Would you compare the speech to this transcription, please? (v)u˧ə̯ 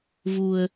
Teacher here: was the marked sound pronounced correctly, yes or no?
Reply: yes